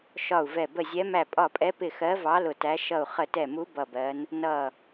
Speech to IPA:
ʃɒ˧˩u̯vɛ˧˩ bə˧˩zʲɛ˨˦ mæ˧˩pʼɒ˧˩pʼɛ˨˦pɪ˧˩ xɜ˨˦vɑ˨˦ lʊ˧˩tæ˨˦ ʃʌ˧˩u̯χə˧˩tɛ˧˩mu˨˦ bʌ˧˩bɜ˨˦n | nʌ˧˩

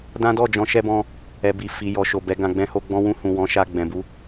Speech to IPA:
dã˦dɔ˦˨d͡ʒɔ̃˧ ʃɛ˧bɔ̃˧ | ɛ˨bi˨ fi˨ jɔ˨ʃo˨ bɛ˨˦ɡã˧ɡ͡bɛ̃˦ho˦ ɡ͡bɔ̃˧wũ˧ hũ˨ wɔ̃˨˦ʃa˧ ɡ͡bɛ̃˨bu˨˦

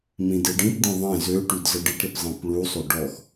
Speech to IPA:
mĩdeɖĩpdĩ ðˤẽ zøʈyd zəɖiʈɾip zˤẽpɭusˤo ɖɔx

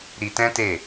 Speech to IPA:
ɾi˧tɛ̃˦ te˦˨

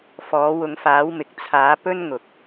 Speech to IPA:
fɔː˨˥ wʊ˨˧ŋfaː˨˥wmɪ˨k̚ t͡sʰaː˨˥ pɵ˥nŋʊ˨k̚

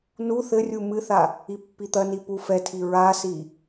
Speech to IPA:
nu θɘrʲu mɨθa | ipːit̪ɐni pu fɛtʰi ɹasi

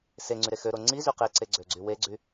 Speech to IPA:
seŋ͡ǀyɾe xøɾo ŋ͡ǀizy qeǀeɡ͡ǀøɡ͡ǀy weɡ͡ǀy

